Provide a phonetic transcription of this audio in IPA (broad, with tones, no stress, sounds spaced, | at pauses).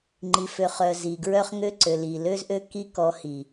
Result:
ŋ͡ǃ i˨ f ø˨ χ œ˨ z i˨ ɡ ɹ œ˦ χ ŋ ø˦ ǀ ø˨ l i˨ l ø˦ z ʔ ø˦ k i˦ k ɔ˧ h i˨